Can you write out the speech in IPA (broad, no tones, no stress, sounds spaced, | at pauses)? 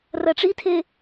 r ɐ ʈ͡ʂ i tʰ e